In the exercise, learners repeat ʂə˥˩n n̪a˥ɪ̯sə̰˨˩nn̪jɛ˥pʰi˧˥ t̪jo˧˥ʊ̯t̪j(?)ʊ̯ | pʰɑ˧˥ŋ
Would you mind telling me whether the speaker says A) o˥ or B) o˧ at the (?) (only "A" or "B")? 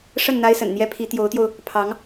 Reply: B